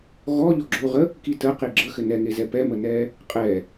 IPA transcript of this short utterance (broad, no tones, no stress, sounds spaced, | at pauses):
ɣ ɔ ʎ ɔ ɡ͡ǁ o ʁ ə | k i t ə q i ɡ͡ǁ ə x ɘ n ɛ ŋ e z ɛ p ɛ m ə n ɛ | qʼ ɛ